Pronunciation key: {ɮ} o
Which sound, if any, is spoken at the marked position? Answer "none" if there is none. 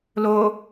l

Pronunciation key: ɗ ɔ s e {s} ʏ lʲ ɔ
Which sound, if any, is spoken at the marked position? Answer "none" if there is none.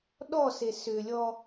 s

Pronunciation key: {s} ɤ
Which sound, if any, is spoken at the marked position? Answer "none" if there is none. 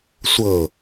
sʷ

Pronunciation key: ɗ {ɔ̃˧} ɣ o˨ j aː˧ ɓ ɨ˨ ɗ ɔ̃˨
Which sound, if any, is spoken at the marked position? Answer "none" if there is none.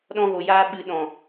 ɔ̃˧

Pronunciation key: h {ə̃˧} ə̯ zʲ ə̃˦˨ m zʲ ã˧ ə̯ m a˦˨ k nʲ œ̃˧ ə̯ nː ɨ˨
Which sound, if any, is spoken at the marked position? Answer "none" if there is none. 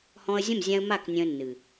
ɔ̃˧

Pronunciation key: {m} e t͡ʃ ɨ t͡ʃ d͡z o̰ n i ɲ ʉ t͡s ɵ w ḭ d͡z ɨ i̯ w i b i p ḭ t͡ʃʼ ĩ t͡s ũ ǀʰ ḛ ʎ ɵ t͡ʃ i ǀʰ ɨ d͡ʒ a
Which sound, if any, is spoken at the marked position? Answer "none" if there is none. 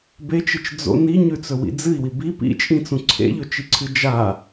b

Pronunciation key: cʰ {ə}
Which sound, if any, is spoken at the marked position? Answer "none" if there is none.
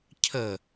ə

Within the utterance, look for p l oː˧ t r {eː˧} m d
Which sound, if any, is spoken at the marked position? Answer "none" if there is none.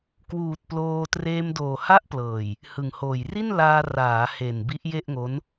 eː˧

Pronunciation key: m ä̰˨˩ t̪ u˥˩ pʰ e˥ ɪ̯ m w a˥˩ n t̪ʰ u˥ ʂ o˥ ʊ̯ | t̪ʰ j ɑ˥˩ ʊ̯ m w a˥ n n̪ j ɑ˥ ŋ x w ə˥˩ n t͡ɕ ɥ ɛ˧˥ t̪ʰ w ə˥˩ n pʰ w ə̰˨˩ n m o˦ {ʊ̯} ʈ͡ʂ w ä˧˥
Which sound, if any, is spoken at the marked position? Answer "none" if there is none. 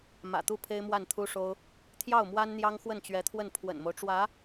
ʊ̯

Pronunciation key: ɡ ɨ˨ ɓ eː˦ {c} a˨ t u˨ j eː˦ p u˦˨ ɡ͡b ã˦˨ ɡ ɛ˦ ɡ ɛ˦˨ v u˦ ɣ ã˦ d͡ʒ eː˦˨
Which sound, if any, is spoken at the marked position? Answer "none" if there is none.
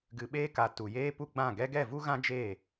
k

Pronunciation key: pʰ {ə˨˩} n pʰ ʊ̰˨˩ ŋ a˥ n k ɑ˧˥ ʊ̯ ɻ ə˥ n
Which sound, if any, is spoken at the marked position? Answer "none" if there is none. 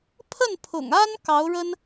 ə˥˩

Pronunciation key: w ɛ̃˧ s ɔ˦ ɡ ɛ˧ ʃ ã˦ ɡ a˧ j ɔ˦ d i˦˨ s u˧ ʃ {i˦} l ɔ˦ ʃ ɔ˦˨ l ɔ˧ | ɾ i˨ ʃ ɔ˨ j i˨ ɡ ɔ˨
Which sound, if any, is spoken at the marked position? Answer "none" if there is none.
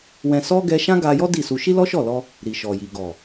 i˦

